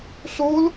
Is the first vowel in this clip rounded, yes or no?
yes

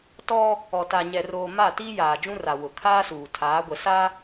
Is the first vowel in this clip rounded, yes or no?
yes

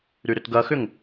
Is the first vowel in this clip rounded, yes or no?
yes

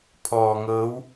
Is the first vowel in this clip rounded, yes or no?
yes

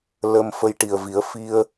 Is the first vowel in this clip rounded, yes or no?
no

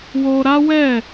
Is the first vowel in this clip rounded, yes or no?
yes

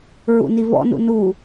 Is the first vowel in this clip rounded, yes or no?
yes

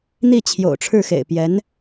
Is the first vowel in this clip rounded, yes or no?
no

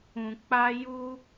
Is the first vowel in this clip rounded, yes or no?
yes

